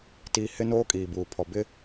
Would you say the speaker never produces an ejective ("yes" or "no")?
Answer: no